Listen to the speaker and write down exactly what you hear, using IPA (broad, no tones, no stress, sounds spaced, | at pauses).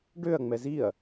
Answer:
ɖ ø ɐ̯ ŋ͡m ɛ z i ɐ̯